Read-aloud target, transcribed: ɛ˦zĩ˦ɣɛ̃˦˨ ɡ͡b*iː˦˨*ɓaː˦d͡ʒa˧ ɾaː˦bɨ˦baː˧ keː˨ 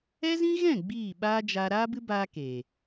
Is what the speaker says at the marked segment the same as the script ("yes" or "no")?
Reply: yes